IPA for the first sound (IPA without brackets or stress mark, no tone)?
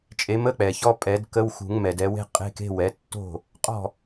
t͡ʃʼ